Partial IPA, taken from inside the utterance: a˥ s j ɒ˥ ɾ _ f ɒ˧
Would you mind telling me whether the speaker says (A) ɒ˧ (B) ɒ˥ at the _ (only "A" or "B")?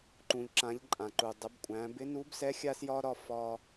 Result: B